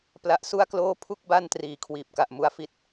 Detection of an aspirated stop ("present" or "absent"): present